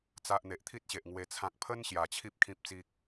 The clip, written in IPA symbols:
t͡sa˨ʔ n̪e˨ʔt̪ʰi˦t̚ɕe˨ʔ ŋwe˧t͡sʰã˦k̚ pʰə˦n ɕja˨˩t͡ɕʰi˦p̚ kʰĩ˨p̚t͡si˨k̚

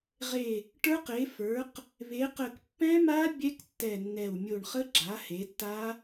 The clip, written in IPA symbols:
ʁe˧˩ | ʈə˞˦˥qe˩˥fə˞˩˥q | βe˩˥qə˧˩k pːɛ̃˦˥ma˦˥ bʲɛ˦˥ktːɛ˧˩nːɛ˧˩w mʲo˧˩ɳχə˦˥ɡ͡ǁa˩˥ he˩˥tːa˦˥

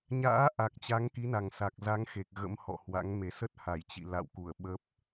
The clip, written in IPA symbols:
ɲa̰ː˧˥ ʔa˨˩k̚t͡ɕa˨˦ŋki˨˦na˨˩ŋ sa˨˩k̚za˨˦ŋxe˨˩k̚ ɣə̰˧˥mhɔ̰˧˨hwa̰˧˥ŋ me˨˩ sə˦˥t̚ha˧˩jt͡ɕḭ˧˨ la̰˧˨wku˧˩ə̯ ɓə˦˥p̚

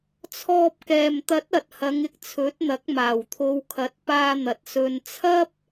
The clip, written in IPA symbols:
t͡sʰɔː˧p̚kɛː˨m t̪ɐ˨˥t̚ɐ˨t̚ hɐ˨˧ŋɪ˧k̚t͡sʰɵ˨˥t̚n̪ɐ˨˥k̚ maː˨˩wt̪ʰo˨˧wkʰɐ˨˥t̚ paː˧n̪ɐ˨t̚ sɵ˧nt͡sʰɐ˥p̚

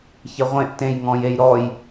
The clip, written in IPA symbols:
çɪʁʷẽʔ tẽjŋɔ̃jej ɾɔj

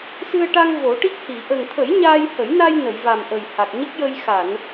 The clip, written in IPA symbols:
sɨ˧ə̯ʈa˧ŋ vo˨˩˦ʈi˦˥k̚hi˨˩˨ ʔə˨˩ŋt̪ʰə˨˩˦j ɲaː˧jhə˨˩˦jna˧j nə˨˩˨jva˨˩m ʔə˨˩jha˨˩k̚ɲə˦˥k̚jə˧j xa˨˩˨n

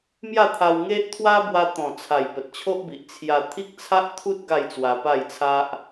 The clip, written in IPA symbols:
mja˥˧t̪ʰa˧wŋe˦ʔ t̪ʰwa˦bwa˧t̪ɔ̃˨˩t͡sʰa˨˩j pə˨t̚t͡ɕʰo˦ʔbi˨ʔ t͡sʰja˧t̪ʰi˦k̚ t͡sʰa˦ʔt̪ʰu˦t̚ ɡa˥˧jt͡swa˧pa˥˧jt͡sʰa˦ʔ

